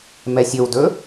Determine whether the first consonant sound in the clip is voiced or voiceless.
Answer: voiced